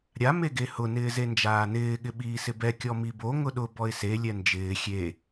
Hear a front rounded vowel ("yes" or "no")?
no